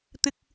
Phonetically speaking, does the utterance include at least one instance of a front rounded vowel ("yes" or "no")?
no